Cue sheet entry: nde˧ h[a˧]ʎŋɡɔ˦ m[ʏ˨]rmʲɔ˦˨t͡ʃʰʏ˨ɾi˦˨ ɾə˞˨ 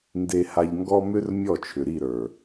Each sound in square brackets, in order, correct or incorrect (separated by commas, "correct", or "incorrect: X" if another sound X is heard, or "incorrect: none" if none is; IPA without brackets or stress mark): correct, incorrect: ʏ˦